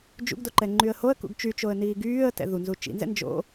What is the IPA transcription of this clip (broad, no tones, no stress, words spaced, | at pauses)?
d͡ʒṵɡdo ǃɛŋ͡ǃyə̯hoə̯kṵɡ t͡ʃyt͡ʃoə̯ niːɡyːə̯tɛ̰ ðunzu t͡ʃḭnzɛ̰ nd͡ʒo̰